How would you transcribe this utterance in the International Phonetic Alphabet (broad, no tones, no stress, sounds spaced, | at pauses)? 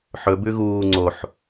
ħ ɵ b ʉ ɣ uː ŋ͡ǀ o ħ